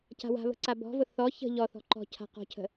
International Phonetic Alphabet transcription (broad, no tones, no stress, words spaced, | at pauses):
ca̤wa̤βə̤ ǀabɔ̤vʊ θɔ çə̤ ʎɔθɔ̤ ǃɔ̤cʰa̤ qɔ̤cʰə̤